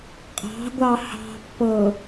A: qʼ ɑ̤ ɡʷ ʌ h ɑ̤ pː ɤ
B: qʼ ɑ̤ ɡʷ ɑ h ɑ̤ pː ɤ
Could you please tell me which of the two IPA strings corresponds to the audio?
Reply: B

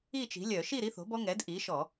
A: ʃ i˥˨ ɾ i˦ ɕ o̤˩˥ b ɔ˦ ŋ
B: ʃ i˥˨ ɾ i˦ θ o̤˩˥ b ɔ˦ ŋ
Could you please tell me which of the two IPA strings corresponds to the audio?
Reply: B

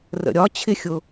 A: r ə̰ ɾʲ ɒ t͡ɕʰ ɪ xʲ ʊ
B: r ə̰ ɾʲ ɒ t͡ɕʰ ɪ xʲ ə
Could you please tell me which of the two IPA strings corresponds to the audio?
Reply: A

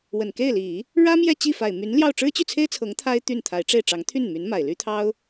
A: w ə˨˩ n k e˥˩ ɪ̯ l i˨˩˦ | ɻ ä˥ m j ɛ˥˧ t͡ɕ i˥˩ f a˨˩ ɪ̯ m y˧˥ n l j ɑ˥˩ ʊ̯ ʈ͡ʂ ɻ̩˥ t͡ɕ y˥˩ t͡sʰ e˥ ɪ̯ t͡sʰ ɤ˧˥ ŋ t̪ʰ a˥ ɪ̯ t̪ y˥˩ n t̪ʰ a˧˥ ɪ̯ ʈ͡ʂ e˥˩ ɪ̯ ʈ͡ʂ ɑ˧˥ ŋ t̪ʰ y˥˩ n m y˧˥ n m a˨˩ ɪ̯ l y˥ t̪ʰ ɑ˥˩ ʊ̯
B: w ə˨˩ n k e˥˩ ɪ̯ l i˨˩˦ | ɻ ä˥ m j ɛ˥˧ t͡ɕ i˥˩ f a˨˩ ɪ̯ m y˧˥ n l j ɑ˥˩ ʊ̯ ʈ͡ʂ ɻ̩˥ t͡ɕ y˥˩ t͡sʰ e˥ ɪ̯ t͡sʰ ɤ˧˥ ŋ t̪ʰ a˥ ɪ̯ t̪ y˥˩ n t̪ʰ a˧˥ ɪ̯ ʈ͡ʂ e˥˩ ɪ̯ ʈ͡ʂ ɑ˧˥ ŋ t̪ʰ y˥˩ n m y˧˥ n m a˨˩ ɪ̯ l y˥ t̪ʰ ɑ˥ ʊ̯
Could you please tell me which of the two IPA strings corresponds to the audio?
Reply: B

